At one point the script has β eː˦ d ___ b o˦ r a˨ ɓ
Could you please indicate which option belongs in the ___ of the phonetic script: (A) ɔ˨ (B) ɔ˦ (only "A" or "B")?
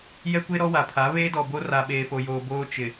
A